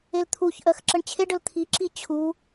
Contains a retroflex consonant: yes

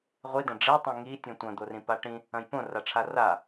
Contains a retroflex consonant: yes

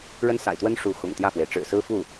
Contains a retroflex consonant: yes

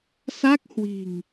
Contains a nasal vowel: no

